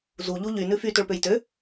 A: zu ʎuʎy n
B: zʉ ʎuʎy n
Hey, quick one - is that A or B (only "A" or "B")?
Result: A